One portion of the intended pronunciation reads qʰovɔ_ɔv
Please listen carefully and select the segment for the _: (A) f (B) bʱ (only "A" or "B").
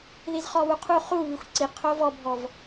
B